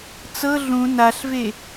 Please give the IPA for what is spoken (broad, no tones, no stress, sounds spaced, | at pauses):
t͡s ɤ ɮ ũ n a ɬ v e